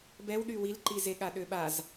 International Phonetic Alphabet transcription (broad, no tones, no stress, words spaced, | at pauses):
bɛwɗy wilǃizeɠa ɗøɓaz